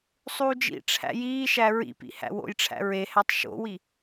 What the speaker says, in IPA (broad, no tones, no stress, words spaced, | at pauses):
sˤuːd͡ʒḭʈ͡ʂʰæ̰ jiːʃæ ɹḭpḭ hæ̰wo̰jʈ͡ʂʰæ̰ ɹehætˤ ʃo̰wi